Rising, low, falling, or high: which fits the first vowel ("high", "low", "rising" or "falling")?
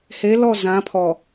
rising